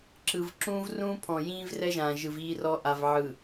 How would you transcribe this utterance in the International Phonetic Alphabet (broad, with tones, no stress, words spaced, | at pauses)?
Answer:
ǁɯ˨v ǁũː˦vrũː˦pʰɔ̃˨jĩː˦v rɛ˦ʒãː˨ʒɯ˨v iː˦rɔ˦ ʔa˨vʕɯ˨